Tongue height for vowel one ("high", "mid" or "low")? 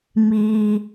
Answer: high